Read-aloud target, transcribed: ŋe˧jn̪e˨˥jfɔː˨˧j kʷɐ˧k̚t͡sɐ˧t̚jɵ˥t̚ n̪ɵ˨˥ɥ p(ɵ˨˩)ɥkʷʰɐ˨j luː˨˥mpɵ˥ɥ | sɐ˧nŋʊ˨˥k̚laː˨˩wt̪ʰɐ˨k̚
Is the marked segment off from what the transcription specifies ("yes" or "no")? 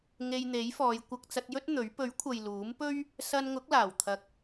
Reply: yes